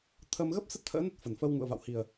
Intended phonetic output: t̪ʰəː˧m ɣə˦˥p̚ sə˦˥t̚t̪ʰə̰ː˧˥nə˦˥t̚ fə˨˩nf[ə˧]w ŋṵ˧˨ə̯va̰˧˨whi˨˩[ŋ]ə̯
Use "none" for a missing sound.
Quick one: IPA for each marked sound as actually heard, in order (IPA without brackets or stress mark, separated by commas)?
ə˧, none